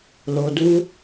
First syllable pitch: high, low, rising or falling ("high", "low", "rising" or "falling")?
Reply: low